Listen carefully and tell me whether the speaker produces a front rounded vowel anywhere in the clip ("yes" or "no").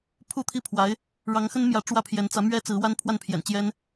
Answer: no